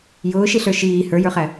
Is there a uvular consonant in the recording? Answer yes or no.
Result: yes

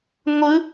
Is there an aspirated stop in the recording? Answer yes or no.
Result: no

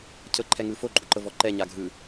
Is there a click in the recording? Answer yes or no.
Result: yes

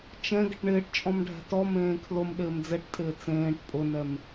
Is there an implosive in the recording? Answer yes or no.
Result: yes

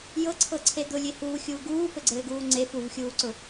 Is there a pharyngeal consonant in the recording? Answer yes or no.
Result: no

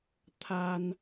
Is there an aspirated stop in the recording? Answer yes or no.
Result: yes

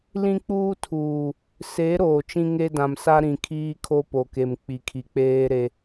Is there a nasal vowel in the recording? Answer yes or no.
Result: yes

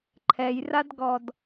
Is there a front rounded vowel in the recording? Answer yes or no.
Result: no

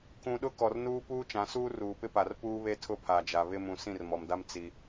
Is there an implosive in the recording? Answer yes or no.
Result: yes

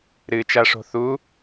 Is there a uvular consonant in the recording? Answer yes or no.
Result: no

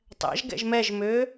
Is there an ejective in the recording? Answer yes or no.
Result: no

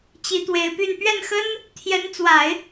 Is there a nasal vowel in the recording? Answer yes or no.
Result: no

